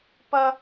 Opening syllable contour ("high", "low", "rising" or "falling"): high